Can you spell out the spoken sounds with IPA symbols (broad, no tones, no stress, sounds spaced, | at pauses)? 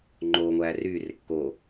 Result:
ŋ͡ǃ oː ŋʷ æː r yː r e kː oː